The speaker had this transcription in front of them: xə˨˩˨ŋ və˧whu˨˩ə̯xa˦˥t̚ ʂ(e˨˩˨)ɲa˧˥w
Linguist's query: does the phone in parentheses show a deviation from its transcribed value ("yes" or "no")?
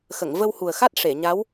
no